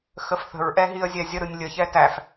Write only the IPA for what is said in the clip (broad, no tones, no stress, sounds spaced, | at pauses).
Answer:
x ə f θ ə̤ ɹ ʔ ɛ ɦ i ə̯ zʲ ɛ zʲ ə ɾ ɯ nʲ lʲ ə ç ɛ t æ f